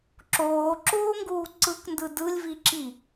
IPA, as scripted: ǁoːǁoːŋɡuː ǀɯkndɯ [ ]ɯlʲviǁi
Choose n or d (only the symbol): d